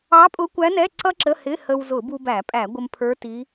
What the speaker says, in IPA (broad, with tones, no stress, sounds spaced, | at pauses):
ɑ˧˥ pʼ ʊ˧˥ kʷ æ˧˥ n ɛ˧˥˧ ǀ ʌ˥ ǁ ə˧˥˧ h ɪ˧˥˧ h ə˧ w z ʊ˧˩˧ b u˧ b æ˧˩˧ pʼ æ˧˩˧ ɡʷ ə˧ m pʰ ə˞˧˥ t i˧˥